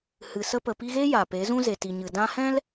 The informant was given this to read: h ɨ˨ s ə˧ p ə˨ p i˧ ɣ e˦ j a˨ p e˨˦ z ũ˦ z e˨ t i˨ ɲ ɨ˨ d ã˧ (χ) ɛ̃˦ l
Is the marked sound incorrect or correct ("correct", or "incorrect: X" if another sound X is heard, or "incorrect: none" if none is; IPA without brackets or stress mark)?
incorrect: h